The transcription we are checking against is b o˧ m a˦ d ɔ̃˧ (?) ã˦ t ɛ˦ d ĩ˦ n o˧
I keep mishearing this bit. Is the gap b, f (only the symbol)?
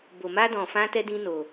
f